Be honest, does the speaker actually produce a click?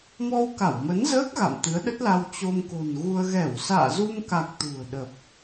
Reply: no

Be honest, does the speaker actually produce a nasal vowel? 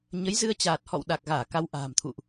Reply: no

